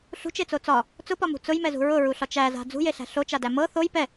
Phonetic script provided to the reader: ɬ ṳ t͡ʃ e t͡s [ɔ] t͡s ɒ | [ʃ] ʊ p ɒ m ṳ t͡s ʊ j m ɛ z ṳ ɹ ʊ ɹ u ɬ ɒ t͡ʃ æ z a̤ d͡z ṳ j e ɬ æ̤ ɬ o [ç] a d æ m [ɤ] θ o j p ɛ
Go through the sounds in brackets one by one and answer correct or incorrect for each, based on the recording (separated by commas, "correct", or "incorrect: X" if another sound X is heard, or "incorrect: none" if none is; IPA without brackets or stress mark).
incorrect: o, incorrect: t͡s, incorrect: t͡ʃ, correct